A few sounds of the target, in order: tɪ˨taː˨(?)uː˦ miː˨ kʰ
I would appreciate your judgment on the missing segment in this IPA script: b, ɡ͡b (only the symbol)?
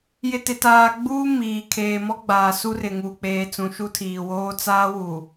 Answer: ɡ͡b